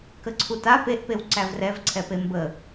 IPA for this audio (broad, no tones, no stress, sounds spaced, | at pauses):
k ə ǀʰ u t a p e ʔ p e w ǀ æ v r ɛ v ǀʰ ɛ p e m b ə